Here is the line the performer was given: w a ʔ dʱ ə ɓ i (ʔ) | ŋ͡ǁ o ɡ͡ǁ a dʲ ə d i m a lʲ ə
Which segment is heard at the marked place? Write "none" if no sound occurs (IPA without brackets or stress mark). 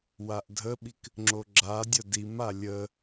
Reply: k